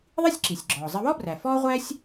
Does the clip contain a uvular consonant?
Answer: yes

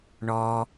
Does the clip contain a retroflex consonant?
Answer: yes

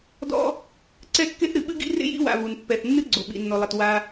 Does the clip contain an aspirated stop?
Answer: no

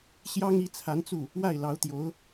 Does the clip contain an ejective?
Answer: no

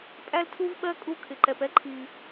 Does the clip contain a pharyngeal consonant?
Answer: no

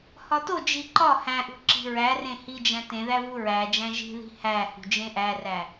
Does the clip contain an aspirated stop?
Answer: no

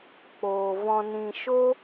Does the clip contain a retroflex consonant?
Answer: no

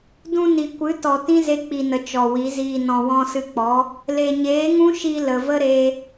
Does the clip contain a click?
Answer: no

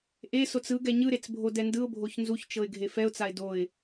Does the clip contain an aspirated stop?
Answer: no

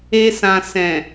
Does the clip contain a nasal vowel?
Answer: yes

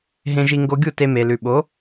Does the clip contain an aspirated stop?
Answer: no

